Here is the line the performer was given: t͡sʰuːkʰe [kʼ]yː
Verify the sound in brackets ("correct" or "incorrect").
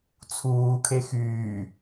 incorrect